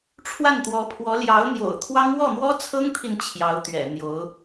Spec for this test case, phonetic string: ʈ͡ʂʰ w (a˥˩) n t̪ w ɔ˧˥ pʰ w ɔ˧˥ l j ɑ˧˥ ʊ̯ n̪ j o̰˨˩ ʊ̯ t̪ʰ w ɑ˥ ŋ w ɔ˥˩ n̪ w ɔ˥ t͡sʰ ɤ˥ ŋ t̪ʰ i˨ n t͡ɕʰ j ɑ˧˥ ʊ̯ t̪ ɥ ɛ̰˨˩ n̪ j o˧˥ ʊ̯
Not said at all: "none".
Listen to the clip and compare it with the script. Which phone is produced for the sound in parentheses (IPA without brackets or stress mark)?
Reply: a˥˩